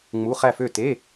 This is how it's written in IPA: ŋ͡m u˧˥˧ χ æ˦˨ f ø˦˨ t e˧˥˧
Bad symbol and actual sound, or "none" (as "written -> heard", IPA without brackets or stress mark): none